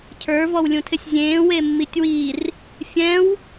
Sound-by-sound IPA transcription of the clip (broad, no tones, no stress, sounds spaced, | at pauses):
cʰ ə˞ v ɔ w lʲ ũ tʰ ɪ sʲ zʲ ẽː w e mː i tʲ w i r | fʲ ɛ̃ w